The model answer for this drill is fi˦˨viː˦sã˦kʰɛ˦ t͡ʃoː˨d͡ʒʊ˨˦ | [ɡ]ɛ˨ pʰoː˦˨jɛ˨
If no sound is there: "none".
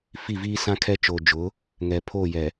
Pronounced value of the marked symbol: ŋ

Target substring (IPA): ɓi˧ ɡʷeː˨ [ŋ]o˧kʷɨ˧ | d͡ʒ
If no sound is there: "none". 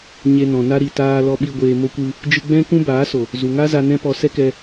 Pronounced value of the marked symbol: m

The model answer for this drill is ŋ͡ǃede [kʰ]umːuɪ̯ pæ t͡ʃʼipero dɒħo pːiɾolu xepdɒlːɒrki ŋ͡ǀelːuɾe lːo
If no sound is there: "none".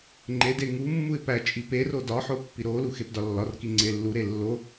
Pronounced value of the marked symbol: ŋ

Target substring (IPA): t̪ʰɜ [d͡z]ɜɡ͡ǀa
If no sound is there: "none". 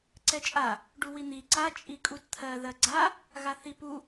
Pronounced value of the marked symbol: ð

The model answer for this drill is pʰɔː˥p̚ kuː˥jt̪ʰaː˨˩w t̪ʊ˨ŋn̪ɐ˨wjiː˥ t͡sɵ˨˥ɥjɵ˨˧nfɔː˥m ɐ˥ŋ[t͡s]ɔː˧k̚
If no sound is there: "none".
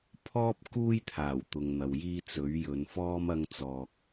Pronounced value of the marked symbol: t͡s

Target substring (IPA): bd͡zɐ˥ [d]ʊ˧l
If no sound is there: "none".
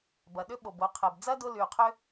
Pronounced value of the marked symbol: d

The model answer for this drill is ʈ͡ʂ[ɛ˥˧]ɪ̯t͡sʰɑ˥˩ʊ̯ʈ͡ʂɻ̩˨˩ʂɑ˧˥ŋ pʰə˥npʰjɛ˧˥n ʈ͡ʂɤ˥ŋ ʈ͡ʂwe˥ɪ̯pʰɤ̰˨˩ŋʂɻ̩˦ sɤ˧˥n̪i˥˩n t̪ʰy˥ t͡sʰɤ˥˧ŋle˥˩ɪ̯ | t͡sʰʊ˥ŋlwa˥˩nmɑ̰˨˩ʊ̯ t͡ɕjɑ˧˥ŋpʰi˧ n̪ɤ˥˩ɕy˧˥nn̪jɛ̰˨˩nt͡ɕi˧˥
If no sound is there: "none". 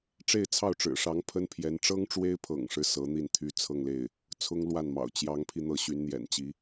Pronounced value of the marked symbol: e˥˧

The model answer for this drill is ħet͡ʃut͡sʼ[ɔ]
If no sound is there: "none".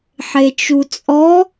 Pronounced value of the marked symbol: ɔ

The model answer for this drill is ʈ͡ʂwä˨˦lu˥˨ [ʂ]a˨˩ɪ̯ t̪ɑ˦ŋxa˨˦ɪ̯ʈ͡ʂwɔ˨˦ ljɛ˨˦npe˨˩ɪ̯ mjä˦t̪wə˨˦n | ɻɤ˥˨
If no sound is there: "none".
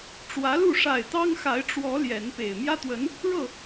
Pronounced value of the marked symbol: ʂ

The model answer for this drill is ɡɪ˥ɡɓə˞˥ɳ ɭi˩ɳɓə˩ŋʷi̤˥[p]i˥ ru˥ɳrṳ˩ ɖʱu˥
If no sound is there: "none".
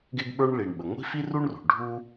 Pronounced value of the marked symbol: f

